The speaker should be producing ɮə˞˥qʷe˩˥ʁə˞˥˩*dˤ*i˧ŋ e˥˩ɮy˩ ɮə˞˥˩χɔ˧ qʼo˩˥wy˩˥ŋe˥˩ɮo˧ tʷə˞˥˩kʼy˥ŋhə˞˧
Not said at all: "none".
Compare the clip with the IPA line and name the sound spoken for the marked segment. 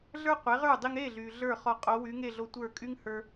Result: dˤ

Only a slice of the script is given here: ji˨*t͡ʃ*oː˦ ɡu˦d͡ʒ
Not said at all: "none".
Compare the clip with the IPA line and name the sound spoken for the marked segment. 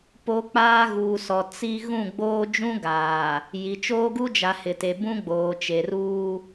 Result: t͡ʃ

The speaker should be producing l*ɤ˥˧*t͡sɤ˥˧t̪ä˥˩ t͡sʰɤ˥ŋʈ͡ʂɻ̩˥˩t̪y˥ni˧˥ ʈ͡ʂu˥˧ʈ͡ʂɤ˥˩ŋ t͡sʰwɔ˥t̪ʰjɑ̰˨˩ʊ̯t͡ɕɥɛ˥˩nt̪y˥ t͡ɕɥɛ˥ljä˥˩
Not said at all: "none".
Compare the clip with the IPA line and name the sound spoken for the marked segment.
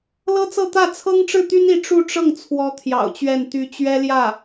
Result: ɤ˥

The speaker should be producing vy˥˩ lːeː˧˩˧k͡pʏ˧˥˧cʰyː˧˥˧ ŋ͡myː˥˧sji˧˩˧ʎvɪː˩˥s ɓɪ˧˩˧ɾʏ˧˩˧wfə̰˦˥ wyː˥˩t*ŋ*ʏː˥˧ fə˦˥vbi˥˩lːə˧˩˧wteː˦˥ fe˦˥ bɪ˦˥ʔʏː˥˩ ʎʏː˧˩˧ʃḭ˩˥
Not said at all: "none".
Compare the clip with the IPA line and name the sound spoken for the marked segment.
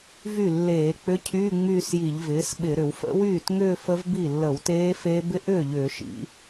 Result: ŋ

